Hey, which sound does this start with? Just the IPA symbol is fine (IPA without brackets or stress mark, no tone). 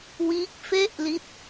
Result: w